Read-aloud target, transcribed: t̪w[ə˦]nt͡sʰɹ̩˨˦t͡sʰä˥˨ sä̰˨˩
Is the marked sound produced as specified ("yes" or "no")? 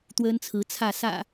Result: yes